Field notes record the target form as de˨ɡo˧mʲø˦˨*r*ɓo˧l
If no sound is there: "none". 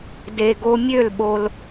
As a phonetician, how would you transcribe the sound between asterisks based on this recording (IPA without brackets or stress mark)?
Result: l